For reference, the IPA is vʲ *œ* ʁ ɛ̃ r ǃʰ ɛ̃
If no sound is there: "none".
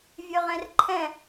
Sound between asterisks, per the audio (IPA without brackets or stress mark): œ